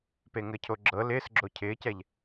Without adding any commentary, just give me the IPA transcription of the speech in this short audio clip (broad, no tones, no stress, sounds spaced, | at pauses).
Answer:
p e ŋ ɘ cʰ o ɡ͡ǁ ɤ l ɪː s ɡ͡ǁ o cʰ ɪː c ɛ ʎ